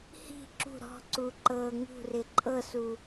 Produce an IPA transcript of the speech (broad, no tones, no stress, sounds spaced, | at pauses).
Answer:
h i̤ ǁ ṳ ɾ ɔ̤ ǀ u ǃ ɤ ŋ ṳ r ɪ ǃʼ ɤ s u